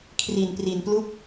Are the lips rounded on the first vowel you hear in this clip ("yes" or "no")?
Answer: no